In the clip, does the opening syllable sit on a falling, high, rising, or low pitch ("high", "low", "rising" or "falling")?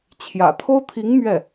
low